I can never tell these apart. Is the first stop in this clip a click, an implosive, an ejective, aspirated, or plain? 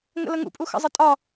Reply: ejective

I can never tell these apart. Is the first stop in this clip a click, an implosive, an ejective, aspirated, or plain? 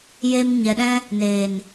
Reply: implosive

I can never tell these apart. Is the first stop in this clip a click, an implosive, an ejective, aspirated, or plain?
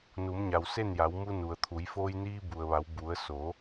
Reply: aspirated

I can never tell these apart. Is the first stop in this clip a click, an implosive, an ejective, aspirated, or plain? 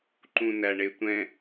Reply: click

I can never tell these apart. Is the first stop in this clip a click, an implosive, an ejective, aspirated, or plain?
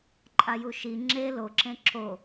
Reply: click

